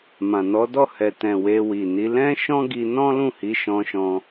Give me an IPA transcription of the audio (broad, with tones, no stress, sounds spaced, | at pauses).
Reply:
m ã˨ n ɔ˨˦ d ɔ˦˨ h ɛ˨ t ɛ̃˨ w e˧ w i˨ n i˨˦ l ɛ̃˦ ʃ ɔ̃˦ ɡ i˧ n ɔ̃˦ l ũ˦˨ h i˨˦ ʃ ɔ̃˧ ʃ ɔ̃˧